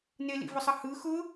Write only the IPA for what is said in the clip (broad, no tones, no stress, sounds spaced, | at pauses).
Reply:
n e l ḭ v ʊ sˤ ʌ h ɯ x ʊ